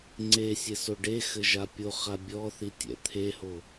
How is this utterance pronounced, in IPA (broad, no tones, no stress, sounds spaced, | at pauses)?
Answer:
ŋ͡ǀ e sʲ e s o ɖ e x ɘ ʒ a pʲ o χ a bʲ ɔ θ i tʲ ɛ̰ t̪ʰ e h o